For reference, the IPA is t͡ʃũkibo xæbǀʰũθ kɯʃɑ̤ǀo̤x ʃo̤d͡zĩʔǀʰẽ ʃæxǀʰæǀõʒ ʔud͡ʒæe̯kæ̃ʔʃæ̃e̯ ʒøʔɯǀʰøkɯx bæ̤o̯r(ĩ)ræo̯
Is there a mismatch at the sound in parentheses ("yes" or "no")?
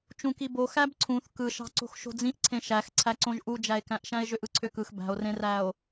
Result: yes